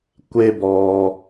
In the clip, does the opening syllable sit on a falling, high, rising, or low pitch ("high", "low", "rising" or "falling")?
high